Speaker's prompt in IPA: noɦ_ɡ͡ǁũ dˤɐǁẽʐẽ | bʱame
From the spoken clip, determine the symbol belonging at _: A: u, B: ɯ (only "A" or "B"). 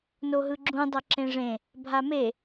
B